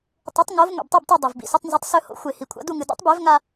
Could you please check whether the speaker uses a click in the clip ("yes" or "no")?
no